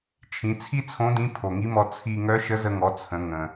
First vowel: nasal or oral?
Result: nasal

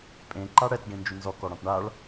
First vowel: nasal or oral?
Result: nasal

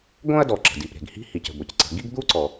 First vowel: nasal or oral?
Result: nasal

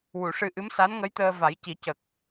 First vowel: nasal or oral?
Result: oral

